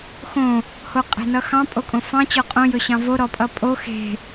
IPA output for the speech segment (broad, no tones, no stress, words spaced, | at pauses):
xõ | hoqʼe̤nʌxɑ̃ pʼokʼõfɑ̃ t͡ɕɔqʼõ jɵɕɑ̃vo ɾɔpʼʌpʼo xe̤